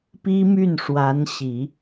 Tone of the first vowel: high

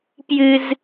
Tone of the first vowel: high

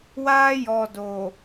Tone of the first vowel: high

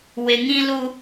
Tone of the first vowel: low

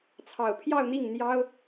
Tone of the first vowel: low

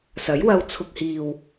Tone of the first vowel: rising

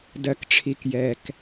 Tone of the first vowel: low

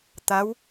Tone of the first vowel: rising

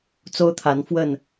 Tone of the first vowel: high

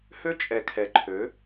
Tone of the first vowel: high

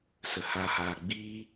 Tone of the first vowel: low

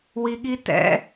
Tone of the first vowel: low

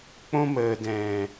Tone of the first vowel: high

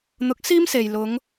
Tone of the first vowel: rising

